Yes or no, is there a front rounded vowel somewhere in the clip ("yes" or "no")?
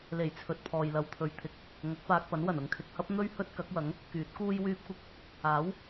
yes